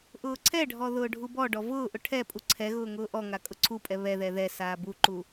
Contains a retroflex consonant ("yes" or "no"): yes